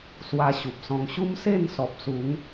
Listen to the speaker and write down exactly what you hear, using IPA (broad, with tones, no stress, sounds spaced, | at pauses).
s w a˧ ɕ u˨ p̚ s ɔ̃˧ ŋ ɕ u˦ m s e˥˧ n s ɔ˨ p̚ s u˨˦ ŋ